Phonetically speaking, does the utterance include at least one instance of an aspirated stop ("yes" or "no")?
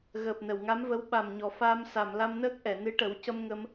no